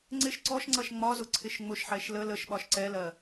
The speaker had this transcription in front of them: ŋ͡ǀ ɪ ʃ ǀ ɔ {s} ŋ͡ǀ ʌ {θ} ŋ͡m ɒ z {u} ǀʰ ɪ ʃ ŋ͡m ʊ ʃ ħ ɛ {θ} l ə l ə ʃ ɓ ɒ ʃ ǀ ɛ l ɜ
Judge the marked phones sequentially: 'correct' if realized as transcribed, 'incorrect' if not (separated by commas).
incorrect, incorrect, incorrect, incorrect